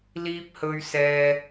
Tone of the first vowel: high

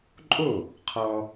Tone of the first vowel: falling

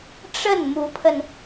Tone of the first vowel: falling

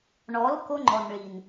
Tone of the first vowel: rising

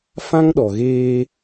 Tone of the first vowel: high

